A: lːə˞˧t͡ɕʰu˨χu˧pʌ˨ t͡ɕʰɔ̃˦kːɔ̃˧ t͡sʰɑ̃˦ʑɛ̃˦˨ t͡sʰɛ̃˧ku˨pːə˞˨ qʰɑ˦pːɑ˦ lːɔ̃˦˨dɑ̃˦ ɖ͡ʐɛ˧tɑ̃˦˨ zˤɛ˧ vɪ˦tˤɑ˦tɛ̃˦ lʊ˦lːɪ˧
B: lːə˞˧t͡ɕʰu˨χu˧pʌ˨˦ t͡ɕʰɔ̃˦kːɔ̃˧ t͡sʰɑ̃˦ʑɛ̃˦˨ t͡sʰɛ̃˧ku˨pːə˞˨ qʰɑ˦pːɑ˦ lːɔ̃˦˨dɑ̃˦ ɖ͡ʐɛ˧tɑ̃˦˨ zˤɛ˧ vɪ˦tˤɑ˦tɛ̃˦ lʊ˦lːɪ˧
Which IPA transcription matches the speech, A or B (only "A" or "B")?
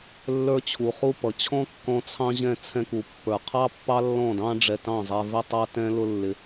A